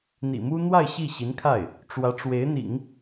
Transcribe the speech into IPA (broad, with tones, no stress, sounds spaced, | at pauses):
n̪ ḭ˨˩ m u˥ n̪ w a˥˧ ɪ̯ ɕ i˥˩ ɕ i˧˥ n kʰ a˥˩ ɪ̯ | ʈ͡ʂ w ä˧˥ ʈ͡ʂ w e˧˥ ɪ̯ n̪ ḭ˨˩˦ ŋ